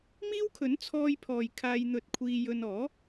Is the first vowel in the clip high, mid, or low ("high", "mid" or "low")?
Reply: high